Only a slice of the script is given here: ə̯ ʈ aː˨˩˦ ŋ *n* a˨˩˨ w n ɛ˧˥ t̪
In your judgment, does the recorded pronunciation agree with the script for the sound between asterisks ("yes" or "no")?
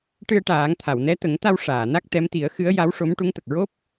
no